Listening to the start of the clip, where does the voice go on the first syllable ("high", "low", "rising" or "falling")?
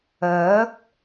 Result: rising